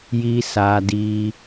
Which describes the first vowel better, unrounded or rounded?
unrounded